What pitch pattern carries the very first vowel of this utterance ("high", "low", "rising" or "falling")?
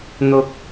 low